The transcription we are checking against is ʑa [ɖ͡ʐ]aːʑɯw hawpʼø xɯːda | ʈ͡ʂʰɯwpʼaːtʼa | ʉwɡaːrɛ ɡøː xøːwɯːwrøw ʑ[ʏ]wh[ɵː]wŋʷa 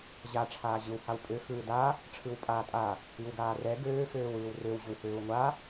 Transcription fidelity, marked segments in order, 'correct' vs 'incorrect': incorrect: ʈ͡ʂʰ, correct, incorrect: øː

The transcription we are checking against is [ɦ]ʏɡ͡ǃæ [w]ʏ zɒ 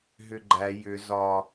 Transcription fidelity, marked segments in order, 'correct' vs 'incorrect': correct, incorrect: j

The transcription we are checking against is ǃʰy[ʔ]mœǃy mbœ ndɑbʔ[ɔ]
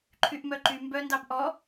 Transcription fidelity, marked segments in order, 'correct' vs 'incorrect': correct, correct

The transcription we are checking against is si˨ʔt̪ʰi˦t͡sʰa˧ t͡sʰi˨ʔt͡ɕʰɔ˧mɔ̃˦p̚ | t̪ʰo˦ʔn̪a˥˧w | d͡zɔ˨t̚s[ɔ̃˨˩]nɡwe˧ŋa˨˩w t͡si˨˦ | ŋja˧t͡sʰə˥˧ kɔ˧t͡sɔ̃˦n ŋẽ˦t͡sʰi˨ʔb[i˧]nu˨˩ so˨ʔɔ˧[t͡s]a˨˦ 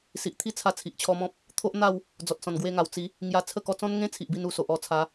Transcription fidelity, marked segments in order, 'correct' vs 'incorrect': correct, correct, incorrect: t͡sʰ

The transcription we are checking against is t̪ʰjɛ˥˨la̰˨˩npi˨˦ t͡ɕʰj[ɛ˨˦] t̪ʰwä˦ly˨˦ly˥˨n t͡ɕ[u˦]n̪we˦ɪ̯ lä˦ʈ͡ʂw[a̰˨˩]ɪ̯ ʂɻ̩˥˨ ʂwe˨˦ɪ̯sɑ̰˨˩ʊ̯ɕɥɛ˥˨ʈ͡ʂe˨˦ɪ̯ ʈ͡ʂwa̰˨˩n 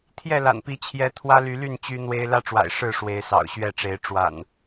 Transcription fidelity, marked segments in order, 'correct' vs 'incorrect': correct, incorrect: y˦, correct

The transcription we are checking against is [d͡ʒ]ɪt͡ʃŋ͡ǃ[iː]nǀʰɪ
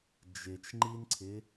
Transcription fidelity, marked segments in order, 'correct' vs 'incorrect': correct, incorrect: i

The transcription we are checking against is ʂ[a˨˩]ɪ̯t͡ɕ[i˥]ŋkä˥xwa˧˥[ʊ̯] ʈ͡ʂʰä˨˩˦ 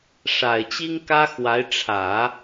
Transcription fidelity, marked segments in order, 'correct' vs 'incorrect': correct, correct, incorrect: ɪ̯

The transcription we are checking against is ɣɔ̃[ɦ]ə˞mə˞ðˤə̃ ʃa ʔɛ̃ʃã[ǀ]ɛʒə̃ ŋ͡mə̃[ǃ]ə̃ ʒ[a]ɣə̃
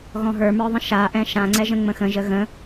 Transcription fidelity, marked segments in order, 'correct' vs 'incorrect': correct, incorrect: ŋ͡ǀ, incorrect: x, incorrect: ə

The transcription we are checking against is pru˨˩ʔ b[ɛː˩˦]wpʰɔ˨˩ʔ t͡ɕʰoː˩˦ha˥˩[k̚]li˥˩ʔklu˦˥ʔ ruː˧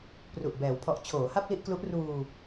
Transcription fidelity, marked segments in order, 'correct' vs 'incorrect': correct, incorrect: p̚

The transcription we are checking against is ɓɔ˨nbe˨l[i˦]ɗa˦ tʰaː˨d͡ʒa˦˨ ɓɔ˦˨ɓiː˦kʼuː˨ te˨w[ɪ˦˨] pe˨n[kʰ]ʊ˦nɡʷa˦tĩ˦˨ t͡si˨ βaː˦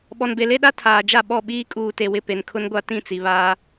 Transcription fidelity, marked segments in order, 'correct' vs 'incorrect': incorrect: e˦, correct, correct

